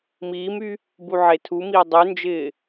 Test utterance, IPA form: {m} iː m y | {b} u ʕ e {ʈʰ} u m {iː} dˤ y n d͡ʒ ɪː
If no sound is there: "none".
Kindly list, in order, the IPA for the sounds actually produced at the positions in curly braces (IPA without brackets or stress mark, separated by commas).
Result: m, b, tʰ, iː